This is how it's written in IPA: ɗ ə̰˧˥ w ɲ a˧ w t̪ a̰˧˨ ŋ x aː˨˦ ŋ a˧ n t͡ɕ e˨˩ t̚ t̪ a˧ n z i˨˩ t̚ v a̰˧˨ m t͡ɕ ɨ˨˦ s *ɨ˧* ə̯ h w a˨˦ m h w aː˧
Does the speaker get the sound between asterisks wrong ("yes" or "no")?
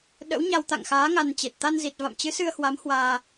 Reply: no